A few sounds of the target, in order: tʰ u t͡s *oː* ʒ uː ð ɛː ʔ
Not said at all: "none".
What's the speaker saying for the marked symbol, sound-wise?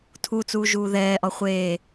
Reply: uː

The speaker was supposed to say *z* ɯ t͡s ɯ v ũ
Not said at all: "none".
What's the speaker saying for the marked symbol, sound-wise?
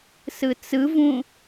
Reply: s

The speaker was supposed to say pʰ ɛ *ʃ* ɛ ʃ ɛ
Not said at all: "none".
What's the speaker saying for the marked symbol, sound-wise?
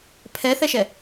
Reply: θ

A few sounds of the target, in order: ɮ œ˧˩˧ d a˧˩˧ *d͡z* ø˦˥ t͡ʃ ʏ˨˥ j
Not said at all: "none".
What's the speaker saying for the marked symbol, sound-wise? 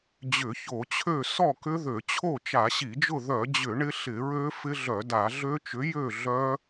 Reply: ɮ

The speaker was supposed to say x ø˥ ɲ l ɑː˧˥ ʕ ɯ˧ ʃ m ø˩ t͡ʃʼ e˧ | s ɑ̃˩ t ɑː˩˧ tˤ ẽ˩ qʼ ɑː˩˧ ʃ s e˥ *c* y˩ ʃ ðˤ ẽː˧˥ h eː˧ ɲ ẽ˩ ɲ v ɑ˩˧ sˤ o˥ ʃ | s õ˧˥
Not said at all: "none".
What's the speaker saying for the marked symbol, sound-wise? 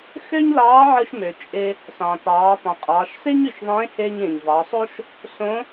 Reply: ɲ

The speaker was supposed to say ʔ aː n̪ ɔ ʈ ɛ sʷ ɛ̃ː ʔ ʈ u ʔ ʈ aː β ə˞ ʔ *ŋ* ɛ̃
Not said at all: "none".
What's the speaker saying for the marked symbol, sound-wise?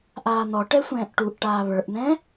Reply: n̪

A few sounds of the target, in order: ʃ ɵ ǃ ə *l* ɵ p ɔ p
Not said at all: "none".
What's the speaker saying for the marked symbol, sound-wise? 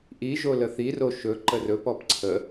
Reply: r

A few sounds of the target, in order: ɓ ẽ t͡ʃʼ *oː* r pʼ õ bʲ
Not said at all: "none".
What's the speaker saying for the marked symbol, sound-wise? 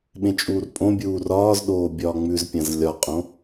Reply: uː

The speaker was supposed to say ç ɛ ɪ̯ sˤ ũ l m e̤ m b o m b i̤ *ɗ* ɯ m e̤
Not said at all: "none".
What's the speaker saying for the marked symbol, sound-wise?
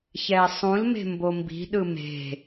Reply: ɗ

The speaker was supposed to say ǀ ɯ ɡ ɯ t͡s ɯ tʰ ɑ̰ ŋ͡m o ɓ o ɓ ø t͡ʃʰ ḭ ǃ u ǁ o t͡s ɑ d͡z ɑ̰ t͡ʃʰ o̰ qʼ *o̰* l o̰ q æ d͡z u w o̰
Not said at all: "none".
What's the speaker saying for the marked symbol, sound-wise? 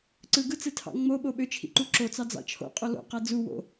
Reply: o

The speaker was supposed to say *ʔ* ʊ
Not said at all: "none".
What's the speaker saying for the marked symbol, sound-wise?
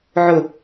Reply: ʕ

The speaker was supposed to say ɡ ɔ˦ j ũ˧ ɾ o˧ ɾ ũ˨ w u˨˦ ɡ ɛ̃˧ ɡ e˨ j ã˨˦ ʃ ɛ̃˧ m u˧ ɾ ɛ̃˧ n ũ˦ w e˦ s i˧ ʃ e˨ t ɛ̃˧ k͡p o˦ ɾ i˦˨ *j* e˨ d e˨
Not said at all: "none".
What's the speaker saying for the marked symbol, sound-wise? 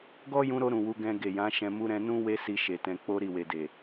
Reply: w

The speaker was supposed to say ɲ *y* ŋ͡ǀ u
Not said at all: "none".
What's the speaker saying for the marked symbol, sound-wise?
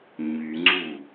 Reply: y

